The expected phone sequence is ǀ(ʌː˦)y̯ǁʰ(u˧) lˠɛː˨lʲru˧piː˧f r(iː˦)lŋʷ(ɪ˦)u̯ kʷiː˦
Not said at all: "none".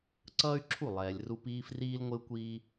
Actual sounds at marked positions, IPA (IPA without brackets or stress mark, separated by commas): ʌː˦, u˦˨, iː˦, ɪ˦